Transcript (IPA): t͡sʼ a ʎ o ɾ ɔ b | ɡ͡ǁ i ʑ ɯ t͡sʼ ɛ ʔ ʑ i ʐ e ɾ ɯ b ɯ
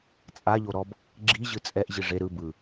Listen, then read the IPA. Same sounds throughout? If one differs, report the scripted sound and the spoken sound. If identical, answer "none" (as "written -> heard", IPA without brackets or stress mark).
none